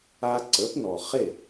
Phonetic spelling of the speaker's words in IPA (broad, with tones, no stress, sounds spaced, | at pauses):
a˧ ǀ ə˩˥ p n ɔ˩ χ e˥˩